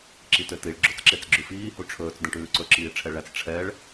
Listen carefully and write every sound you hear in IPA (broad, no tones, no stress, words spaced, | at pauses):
ǁitøtiɭ ɡ͡ǁot͡sǁet͡sɡ͡ǁʉfiː huʈ͡ʂʰɵːt͡s dɛ̃ʈʉːǀɵ ǁiːʈ͡ʂʰɛɭæt͡s ʈ͡ʂʰɛɭ